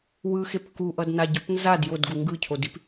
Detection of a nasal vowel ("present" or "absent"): absent